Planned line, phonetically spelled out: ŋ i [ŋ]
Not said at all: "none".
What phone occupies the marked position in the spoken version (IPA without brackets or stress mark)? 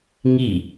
none